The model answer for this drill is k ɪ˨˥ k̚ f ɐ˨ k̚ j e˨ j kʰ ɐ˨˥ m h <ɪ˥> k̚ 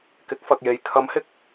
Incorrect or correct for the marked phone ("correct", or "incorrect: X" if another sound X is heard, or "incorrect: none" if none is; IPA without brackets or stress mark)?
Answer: incorrect: ɪ˨˥